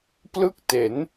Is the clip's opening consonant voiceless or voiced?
voiceless